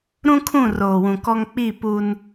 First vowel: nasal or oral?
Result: nasal